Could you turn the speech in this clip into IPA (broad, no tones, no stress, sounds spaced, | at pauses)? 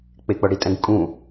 k͡p e k͡p ɤ ɽ i tʼ ɛ̃ ɡ kʼ ũ